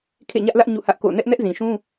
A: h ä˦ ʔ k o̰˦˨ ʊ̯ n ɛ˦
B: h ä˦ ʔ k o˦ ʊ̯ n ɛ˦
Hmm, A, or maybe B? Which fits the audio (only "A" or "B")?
A